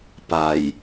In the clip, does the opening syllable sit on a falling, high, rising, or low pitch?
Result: low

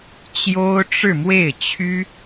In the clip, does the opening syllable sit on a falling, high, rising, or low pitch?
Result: high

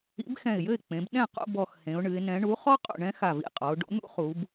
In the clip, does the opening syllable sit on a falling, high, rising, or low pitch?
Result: rising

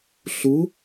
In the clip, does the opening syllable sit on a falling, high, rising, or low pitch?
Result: rising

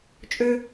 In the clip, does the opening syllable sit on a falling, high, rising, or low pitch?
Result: high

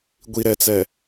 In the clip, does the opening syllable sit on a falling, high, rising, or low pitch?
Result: low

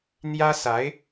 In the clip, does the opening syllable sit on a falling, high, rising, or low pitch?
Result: high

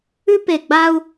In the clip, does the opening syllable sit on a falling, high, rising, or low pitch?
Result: high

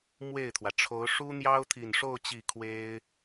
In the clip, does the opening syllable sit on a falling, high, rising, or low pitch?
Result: falling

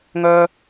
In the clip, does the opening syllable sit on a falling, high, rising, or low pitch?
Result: high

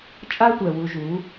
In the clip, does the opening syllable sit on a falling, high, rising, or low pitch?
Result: high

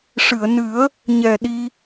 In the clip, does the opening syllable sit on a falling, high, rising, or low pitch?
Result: low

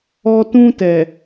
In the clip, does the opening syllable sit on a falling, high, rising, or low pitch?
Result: high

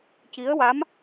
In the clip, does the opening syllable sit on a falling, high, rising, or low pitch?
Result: rising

